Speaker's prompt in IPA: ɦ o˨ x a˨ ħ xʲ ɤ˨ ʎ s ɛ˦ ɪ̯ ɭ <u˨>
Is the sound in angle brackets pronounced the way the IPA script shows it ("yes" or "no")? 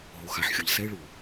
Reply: yes